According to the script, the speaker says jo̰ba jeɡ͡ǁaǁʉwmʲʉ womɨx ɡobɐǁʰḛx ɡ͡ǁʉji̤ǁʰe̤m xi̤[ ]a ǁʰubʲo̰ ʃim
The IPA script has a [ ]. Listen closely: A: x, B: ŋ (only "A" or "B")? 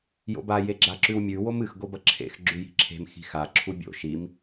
A